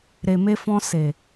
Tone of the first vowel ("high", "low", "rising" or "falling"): low